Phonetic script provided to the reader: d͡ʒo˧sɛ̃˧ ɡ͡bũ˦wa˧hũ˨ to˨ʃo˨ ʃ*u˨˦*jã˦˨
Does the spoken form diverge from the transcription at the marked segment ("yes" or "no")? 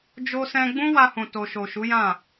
no